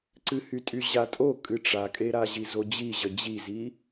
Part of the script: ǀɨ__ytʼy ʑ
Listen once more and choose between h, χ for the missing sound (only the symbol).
h